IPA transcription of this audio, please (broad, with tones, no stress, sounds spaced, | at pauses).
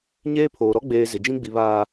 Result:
ɲ eː˦ pʰ oː˨ ɾ ɔ˦ ɡ͡b eː˨ z ɪ˨ d͡ʒ ĩ˦ ɡ͡b i˨ β aː˨